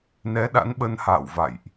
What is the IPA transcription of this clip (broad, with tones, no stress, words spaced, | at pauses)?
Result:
nɛ˨˦ɗa̰˧˥n ɓə˧nha̰ː˧˨wva̰˧˨jʔ